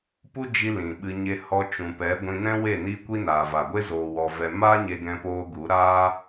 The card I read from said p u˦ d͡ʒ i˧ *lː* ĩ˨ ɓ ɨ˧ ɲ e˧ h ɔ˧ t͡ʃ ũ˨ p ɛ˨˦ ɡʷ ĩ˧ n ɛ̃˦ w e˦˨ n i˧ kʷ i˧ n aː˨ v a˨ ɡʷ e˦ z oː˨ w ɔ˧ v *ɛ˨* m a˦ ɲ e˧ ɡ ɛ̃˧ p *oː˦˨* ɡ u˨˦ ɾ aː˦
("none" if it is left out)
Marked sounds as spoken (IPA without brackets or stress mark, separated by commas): l, ɛ˧, oː˧